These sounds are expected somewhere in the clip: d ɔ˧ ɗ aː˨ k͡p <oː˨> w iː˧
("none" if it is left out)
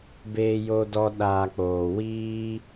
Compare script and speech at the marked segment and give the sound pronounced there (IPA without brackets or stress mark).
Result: oː˨